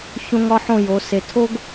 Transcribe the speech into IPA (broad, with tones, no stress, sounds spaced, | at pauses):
ç õ˧ ŋ ɒ˧ ħ õ˧˩ j o˩˧ s e˩˧ tʰ o˥ ɡ